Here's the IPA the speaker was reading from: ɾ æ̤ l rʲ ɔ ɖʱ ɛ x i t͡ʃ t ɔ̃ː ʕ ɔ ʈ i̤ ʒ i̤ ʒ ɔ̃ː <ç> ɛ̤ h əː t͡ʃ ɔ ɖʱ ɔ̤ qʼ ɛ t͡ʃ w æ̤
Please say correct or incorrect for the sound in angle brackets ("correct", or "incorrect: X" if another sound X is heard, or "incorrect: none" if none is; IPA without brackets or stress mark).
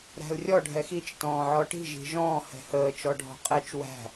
incorrect: h